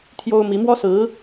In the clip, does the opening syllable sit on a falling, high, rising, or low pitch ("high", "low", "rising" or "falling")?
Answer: high